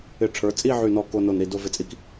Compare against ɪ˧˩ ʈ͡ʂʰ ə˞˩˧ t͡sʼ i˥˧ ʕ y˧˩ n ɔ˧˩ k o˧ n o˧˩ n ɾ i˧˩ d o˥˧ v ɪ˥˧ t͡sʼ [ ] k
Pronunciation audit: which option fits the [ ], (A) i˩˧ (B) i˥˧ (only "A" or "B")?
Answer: B